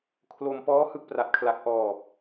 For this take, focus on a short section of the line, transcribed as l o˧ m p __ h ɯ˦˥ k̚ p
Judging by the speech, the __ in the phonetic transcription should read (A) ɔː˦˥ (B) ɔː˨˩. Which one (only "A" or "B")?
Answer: A